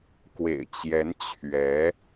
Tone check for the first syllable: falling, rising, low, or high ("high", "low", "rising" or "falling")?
low